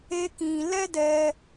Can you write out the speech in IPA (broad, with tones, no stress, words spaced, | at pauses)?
e˦kĩ˧ lɛ˦dɛ˧